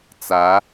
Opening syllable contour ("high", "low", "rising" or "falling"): rising